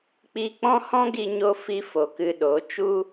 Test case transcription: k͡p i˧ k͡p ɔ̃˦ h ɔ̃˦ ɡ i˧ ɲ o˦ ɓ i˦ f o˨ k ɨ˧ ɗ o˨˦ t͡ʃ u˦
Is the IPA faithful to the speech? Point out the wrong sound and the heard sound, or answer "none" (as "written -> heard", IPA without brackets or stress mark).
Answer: ɓ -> f